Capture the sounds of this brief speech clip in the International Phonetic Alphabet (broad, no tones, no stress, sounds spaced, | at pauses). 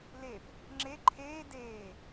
l e p | ŋ͡ǁ e ǃʰ eː d eː